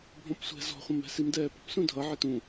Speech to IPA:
bʱɔ̃psʷɛ̤ zɔ̤χʷə̃mɛ̤ simdɛːpə̤p sũdʱʌ ʕɪtũ

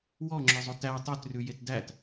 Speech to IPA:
wɔŋ͡ǁœzˤot æ tˤøtrʉjet dæt

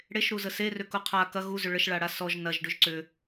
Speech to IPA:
ɽeʃɾuzə serʏku qʰa kɐ ɣuzʏ ɭəʃɭaɽa sɔʒ nɐʒɖʏʒ ǀʏ

